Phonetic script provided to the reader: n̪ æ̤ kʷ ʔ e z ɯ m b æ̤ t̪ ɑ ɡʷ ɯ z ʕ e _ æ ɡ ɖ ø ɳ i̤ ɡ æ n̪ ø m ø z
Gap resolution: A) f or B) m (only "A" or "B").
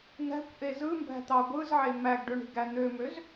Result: B